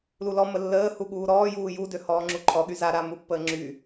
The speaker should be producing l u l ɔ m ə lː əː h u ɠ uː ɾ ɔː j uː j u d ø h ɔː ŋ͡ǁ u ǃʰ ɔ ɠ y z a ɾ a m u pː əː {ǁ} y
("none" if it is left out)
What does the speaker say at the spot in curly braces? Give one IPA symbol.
ŋ͡ǁ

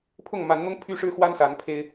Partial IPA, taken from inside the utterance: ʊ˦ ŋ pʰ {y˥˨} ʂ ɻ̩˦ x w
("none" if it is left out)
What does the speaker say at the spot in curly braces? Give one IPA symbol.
y˦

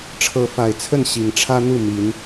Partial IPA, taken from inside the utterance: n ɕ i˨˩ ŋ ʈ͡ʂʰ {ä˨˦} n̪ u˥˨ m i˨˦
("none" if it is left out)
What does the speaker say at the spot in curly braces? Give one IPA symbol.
ä˦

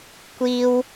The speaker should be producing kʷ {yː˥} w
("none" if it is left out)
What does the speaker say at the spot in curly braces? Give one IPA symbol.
iː˥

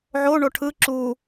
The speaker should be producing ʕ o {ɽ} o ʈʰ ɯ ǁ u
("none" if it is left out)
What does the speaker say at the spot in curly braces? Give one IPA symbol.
ɳ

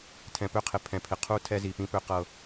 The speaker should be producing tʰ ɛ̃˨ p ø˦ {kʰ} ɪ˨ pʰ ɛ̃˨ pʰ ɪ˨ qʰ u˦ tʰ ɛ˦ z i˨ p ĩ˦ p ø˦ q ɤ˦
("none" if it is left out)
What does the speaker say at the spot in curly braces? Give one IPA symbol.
qʰ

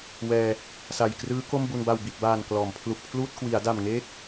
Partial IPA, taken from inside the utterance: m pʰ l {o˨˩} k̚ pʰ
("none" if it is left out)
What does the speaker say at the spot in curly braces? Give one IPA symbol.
u˨˩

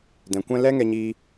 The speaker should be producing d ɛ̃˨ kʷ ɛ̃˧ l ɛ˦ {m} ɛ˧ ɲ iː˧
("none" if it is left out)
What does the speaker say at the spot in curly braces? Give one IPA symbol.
ŋ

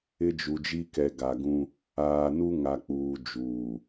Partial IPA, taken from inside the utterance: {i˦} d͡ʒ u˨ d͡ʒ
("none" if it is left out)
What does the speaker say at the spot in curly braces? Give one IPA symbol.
ɪ˦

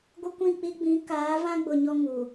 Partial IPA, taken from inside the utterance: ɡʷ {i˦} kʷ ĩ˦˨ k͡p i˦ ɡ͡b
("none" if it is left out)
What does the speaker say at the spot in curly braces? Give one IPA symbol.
ɪ˦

